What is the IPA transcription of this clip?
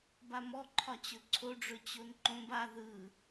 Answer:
b a m ɔ ǃʰ ɒ t͡ɕ ɵ ǀʰ o ɖ͡ʐ ɵ t͡ɕ o n ǃ õ b a ð ɯ

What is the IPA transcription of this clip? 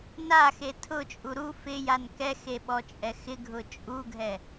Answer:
n a x e tʰ ʊ t͡ʃʼ u ɾ u f ɪ j a n k ɛ x e ɓ ɔ t͡ʃʼ ɛ x ɪ ɡʱ ʊ t͡ʃʼ u ɡʱ ɛ

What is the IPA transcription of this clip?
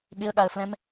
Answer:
ɠ ɪ ə̯ ɠ a ə̯ f l ɛ̃ m

